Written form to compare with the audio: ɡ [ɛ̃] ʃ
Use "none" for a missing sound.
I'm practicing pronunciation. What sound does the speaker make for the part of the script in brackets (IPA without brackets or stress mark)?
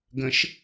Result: ə̃